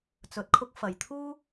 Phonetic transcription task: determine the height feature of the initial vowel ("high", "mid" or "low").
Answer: mid